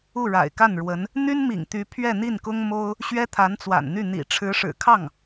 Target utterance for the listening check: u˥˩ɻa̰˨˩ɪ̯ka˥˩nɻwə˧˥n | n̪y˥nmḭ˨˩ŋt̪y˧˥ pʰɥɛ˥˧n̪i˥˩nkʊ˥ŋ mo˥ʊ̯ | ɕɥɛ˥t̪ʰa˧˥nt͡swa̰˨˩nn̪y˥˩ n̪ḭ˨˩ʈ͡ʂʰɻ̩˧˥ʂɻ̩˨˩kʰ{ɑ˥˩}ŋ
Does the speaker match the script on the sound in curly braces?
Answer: yes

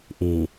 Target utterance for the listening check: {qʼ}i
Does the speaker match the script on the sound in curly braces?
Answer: no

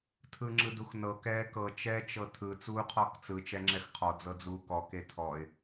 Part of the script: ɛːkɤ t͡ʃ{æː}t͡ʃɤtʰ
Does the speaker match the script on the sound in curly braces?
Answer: no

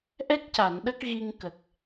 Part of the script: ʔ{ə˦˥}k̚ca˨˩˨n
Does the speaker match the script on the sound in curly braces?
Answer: no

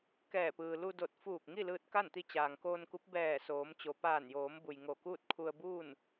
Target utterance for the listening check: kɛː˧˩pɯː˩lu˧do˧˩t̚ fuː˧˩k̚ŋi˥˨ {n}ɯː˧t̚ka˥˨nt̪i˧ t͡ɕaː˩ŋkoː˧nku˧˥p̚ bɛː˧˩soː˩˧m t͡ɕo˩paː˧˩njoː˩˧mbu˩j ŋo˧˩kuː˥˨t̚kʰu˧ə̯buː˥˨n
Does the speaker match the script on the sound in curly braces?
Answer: no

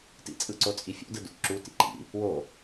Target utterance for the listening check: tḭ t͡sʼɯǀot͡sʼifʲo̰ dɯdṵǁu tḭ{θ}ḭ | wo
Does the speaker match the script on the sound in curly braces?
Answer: no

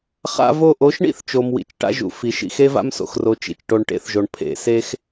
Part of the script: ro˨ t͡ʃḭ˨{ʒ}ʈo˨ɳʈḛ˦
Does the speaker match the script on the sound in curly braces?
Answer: no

